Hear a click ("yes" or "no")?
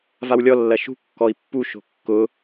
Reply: no